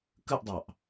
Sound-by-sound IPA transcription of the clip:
k ɯ ʔ dˤ ɑ ʔ

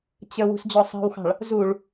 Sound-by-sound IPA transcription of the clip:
t͡ɕ ə w ṳ s d͡ʑ ɔ sˤ ɑ̤ w x ɑ̤ ɭ | z u ɭ

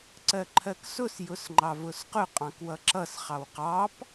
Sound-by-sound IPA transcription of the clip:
ǀ ɜ ǃʰ ɜ k s ʊ s j ʊ s ŋ͡ǃ ɑ v ʊ s q ʊ qʼ ɑ̃ k w ʌ ǁ ʌ s χ ɑ w q ɑ p

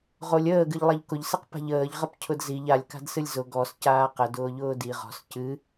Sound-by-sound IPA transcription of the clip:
ʁ o lʲ əː ɡ ɨ ʎ lˠ a ʎ k ʊ ʎ s ɨ q p a̤ ʎ əː ʎ ʁ ə p cʰ ʊ d z i ʎ a lʲ k a̤ d s ɨ lʲ z ʊ ɡ ɔ s c aː q ə d ʊː ʎ ʊː d i ʁ ɔ̤ s c ɨ

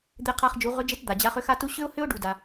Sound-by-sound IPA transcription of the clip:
d̪ e˧ qʰ a˧ χ d͡ʒ u˩˧ ʁ ʏ˧˥ d͡ʒ e˧˥ t d̪ a˩ d͡ʑ a˧˥ χ ʏ˥ x a˥ t u˥ ɕ ʏ˥ ʊ̯ h ʏ˥ ʊ̯ ɖ u˩ d a˩

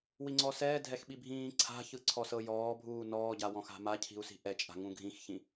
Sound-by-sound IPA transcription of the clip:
w i ŋ͡ǀ ɔ s ɛː dʱ ɛ x ɓ i bʱ ĩː ǀʰ a̤ ç ɯ ǀʰ ɔ s ɤ j ɔː bʱ uː n ɔː ɟ a w ɔ̃ x a̤ m a cʰ i̤ u̯ s i̤ ʔ ɛ t͡ʃʼ a̤ ŋ ũ ɡʱ ĩ x ç ĩ

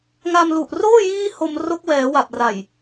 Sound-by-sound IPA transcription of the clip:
ŋ a˧ m l u˨˩ ʔ r oː˥˩ j iː˥˩ h o˧ m r o˦˥ k̚ w ɛː˩˦ w a˨˩ p̚ r a˨˩ j

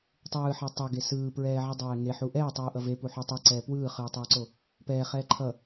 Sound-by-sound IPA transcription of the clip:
tˤ ɯː ħ e tˤ ʌ ɡ e s ɯː p ɹ ɛː ʕ i dˤ ɛː ŋ e ħ u ʔ ɛː tˤ ɯː ʔ ʌ v e p u ħ u tˤ e ǀ ɛː p w ɯː χ ɯː tˤ ɯː ǀ o | p ɛː χ ɛː ǃʰ ʌ

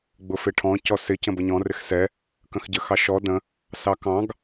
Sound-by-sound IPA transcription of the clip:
ɡ͡b ʊ f ɪ ʈʰ ɔ̃ c ɔ s ɪ c ə̃ b ə ɲ ɔ̃ r ɪ x s ɛ | k ə̃ x ɟ ə x ɑ ʃ ɔ d ə̃ | s ɑ k ɑ̃ ɡ

